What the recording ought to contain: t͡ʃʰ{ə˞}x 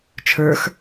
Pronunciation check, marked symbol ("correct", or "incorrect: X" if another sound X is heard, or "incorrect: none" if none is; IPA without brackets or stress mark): correct